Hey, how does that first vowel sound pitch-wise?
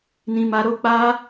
high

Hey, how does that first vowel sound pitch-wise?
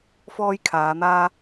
high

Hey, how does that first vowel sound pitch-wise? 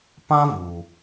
high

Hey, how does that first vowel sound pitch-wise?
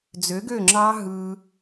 rising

